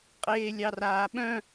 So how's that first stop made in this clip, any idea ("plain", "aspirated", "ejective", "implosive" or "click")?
ejective